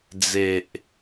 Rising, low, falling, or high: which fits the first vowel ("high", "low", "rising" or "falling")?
low